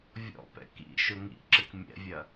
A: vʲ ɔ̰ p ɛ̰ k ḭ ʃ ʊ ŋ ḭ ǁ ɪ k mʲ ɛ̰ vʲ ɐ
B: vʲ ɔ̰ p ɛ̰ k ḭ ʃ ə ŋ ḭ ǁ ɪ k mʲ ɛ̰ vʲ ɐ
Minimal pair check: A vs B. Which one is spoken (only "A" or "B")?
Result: A